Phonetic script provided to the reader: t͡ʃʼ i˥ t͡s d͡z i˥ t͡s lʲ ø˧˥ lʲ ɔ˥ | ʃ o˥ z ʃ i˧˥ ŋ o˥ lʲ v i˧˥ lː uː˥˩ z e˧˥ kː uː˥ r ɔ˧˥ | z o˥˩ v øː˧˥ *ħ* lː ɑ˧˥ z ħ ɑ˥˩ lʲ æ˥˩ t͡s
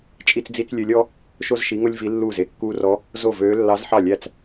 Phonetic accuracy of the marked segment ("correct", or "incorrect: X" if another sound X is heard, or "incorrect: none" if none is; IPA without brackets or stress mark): incorrect: none